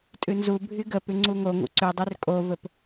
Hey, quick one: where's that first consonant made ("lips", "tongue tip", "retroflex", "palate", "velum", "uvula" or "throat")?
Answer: tongue tip